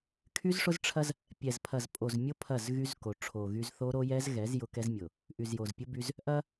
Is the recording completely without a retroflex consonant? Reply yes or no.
no